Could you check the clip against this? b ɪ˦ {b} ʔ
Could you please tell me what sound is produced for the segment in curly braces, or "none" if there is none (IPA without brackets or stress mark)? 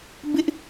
none